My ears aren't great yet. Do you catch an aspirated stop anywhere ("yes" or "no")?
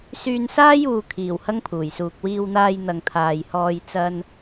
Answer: yes